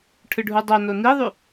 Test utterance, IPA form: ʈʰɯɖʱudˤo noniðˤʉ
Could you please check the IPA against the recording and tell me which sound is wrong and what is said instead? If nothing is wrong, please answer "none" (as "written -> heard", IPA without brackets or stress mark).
none